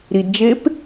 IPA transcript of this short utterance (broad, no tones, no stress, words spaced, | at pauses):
ɾidd͡ʒep